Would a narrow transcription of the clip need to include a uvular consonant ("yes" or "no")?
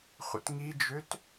yes